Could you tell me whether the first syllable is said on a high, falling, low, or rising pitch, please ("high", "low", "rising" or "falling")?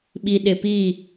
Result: low